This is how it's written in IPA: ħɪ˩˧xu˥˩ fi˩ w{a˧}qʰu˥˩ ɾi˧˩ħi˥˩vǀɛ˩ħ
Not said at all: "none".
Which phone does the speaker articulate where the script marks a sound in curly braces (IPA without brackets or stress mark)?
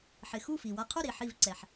a˧